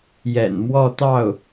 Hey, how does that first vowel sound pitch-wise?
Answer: low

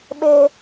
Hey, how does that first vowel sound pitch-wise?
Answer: high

